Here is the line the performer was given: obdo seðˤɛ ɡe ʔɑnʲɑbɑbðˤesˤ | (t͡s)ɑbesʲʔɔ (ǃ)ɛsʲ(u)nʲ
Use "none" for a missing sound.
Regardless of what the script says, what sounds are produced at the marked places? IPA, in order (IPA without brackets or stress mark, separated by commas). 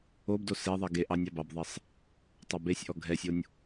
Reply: tˤ, ɡʱ, o